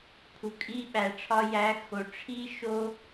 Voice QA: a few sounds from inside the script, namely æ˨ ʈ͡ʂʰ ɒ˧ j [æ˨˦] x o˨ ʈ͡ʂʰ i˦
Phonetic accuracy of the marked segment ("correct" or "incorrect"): correct